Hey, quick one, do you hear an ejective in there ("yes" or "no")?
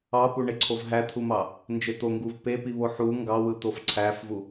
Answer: no